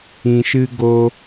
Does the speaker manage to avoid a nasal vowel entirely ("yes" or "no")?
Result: no